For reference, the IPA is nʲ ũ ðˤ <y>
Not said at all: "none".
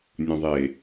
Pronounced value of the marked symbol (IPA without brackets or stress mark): e